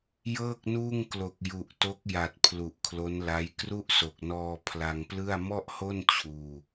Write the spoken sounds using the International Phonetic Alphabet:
j ɤː˥˩ k̚ n uː˥˩ ŋ k l o˨˩ k̚ j u˨˩ ʔ t o˦˥ k̚ j a˨˩ t̚ pʰ l u˨˩ ʔ kʰ l o˦˥ n l a˦˥ j k r u˥˩ ʔ s o˨˩ k̚ n ɔː˧ pʰ l a˧ ŋ p l ɯ˥˩ a̯ m ɔ˥˩ ʔ h o˥˩ n t͡ɕʰ uː˧

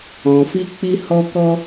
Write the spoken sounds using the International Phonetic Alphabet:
ɔ̃˨ f i˧ k͡p i˧ h ɔ˧ k ɔ˦

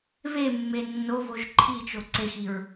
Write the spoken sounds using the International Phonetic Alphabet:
β e mː e nː o β o ʒ ǃʰ i t͡ʃ o ǀ e x i ɹ

